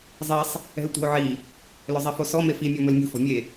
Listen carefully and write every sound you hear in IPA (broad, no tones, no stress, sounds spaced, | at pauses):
zˤ e sˤ | ɛ̤ l tʷ e̤ o̯ ʕ i | l ɵ zˤ e f o s ɔ m e f i mʲ ɔ m ɵ l mʲ ṳ f ɔ̤ mʲ e